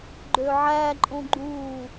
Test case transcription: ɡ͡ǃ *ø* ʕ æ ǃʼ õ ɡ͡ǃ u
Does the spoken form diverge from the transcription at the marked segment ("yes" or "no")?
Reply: no